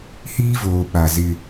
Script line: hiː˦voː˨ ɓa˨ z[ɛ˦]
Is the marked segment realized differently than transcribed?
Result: yes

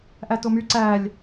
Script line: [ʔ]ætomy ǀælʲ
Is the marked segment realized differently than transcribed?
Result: no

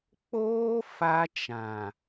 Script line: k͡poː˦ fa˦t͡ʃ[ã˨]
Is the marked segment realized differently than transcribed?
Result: no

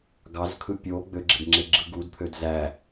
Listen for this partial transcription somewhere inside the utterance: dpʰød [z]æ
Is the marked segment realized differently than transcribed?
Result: no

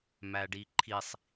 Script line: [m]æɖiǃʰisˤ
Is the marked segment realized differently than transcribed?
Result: no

